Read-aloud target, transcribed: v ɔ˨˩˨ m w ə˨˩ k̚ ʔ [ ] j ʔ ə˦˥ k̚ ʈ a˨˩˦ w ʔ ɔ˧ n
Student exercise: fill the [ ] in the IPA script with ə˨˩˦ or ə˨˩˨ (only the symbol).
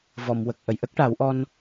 ə˨˩˨